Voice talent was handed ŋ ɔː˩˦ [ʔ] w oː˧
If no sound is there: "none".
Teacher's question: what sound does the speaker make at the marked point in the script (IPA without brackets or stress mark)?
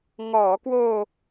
k